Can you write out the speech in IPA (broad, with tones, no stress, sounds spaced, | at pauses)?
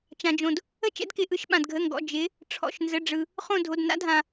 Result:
t͡ʃ ã˩ d͡ʒ õ˩ d | ə˦˨ t͡ʃ ɛ̰˨˦ d k ɪ˩˧˩ ʔ ɯ˩˧˩ ʃ ɓ ã˩ d ɡʱ ə˩˧˩ ŋ ɡ ɔ̰˩˧˩ d͡ʒ ɪ˨˦ | ʈ͡ʂʰ ɔ̰˩˧˩ ʃ n z ə˩˧˩ ɖ͡ʐ ɯ˩ | χ õ˦˨ dʱ o˩˧˩ d n a̰˨˦ dʱ ã˩